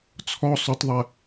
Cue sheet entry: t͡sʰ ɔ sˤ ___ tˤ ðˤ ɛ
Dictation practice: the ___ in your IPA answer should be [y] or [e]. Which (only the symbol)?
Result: y